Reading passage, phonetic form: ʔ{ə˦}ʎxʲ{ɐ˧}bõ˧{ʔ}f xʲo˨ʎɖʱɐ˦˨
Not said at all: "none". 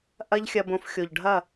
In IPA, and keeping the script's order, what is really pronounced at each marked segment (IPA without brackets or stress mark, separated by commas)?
ɐ˦, ɐ˧, none